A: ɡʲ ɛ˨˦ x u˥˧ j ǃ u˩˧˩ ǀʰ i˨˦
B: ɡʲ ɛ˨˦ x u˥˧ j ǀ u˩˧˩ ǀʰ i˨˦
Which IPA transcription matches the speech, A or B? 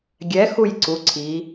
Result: B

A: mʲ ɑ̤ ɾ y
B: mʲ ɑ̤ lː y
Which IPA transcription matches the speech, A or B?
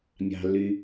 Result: B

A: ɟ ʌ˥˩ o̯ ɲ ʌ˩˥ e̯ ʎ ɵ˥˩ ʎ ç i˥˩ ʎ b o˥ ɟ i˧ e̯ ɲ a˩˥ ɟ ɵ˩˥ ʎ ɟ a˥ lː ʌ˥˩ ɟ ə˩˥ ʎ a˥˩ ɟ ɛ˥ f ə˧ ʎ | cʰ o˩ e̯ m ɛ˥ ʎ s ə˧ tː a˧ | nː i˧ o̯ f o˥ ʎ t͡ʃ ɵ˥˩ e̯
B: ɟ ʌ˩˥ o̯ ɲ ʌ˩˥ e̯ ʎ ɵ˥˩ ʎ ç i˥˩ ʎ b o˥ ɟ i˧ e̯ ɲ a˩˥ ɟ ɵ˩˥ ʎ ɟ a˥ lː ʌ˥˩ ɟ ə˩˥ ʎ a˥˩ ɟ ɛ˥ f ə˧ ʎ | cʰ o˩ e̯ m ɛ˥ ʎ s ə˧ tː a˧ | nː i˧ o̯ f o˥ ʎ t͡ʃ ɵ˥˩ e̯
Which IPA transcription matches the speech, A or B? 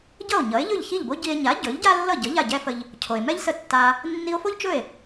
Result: A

